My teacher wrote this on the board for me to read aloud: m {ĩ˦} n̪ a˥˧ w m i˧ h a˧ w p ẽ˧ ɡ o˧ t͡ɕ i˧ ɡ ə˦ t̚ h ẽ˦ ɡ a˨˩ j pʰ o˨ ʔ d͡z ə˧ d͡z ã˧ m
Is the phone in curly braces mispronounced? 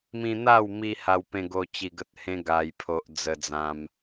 yes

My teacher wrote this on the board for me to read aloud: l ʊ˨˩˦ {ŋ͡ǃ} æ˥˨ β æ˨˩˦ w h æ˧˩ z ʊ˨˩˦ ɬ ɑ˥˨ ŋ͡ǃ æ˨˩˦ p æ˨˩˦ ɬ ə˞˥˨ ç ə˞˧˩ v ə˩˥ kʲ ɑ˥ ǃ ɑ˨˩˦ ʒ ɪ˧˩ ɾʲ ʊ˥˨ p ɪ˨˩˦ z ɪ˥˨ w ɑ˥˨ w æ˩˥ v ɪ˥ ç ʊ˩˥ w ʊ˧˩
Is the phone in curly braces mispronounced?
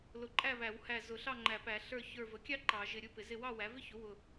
yes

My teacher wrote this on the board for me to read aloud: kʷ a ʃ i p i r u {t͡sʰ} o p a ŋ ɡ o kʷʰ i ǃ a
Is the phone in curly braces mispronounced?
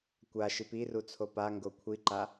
no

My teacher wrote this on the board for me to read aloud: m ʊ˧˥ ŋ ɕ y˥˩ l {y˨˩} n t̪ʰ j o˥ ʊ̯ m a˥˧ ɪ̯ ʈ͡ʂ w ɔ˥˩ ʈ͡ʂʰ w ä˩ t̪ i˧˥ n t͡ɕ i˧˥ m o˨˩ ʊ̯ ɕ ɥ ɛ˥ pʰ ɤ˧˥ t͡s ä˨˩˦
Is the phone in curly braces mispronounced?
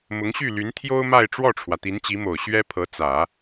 yes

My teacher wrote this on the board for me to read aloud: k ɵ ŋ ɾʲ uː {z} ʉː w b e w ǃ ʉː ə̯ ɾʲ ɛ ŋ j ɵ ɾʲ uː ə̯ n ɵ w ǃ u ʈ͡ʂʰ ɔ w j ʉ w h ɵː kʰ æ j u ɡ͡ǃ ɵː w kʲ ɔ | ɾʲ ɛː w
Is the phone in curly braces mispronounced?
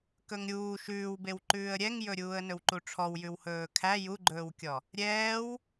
yes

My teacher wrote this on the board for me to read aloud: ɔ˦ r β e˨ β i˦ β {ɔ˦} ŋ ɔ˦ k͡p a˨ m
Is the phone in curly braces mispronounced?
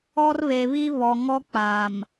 yes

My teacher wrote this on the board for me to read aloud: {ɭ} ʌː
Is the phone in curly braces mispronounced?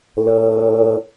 yes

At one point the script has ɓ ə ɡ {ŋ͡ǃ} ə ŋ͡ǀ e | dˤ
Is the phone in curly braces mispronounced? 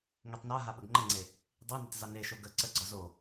no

